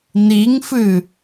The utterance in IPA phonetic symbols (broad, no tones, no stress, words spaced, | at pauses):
niŋfɨ